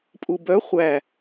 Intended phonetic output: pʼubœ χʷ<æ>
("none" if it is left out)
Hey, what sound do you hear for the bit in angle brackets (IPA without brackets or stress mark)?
æ